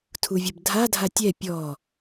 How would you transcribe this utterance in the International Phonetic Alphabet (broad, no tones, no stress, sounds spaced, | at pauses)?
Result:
tʰ u vʲ ɐ b dʱ a dʱ a tʲ ɛ pʲ ɔ